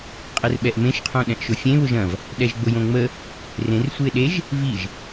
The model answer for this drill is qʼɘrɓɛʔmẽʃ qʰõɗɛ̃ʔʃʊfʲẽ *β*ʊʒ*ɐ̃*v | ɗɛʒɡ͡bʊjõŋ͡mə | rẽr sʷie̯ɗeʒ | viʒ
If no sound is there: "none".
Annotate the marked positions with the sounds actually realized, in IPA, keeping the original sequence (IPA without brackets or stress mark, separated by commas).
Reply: β, ɐ̃